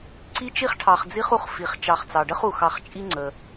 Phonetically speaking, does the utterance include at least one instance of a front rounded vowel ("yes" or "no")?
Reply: no